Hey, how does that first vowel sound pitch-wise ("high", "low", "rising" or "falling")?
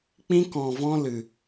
high